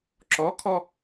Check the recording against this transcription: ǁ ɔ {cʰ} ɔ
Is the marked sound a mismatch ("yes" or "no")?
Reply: yes